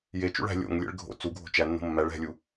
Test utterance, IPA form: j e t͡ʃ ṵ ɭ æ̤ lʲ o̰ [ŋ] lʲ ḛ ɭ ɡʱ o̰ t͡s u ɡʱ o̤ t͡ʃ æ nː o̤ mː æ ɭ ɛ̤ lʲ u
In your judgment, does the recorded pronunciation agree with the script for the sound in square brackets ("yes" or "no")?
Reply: yes